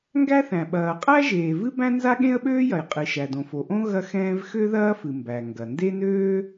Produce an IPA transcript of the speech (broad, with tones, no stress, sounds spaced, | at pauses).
ŋ ɡ æ˥ θ æ̃˩ ɓ ɐː˩ qʼ æ˥ ʒ eː˩ v ɨ˥ b æ̃˥ n z a˥ ɠ ẽ˥ ə̯ ɓ øː˥ j ɐ˩ j qʼ ɨ˩ ʃ æ˩ d õ˩ f o˩ ʔ õ˥ ɣ ɐ˥ x ɛ̃ː˥ v x ø˥ ð ɐː˥ f ɨ˩ m b æ˩ ŋ ɡ ɐ˩ n d e˥ n øː˥